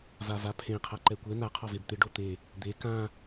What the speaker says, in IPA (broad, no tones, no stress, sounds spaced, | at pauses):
v a v a pʰ ẽ qʰ a ǃ ɛ kʷ ɛ n̪ a qʰ ɔ v e b t̪ ɪ ɖ o t̪ e | d̪ e k ã